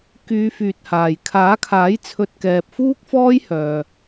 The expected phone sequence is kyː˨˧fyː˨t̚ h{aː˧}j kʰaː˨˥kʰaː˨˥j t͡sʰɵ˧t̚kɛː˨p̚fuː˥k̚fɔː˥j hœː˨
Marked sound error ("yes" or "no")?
yes